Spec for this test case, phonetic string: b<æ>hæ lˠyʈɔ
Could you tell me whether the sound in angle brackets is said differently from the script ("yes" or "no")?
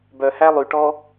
yes